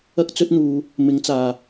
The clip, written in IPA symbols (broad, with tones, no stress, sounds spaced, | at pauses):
ɐ˥ k̚ t͡s ɵ˥ t̚ n̪ uː˨ | m ɪ˨˥ ŋ t͡s aː˨˩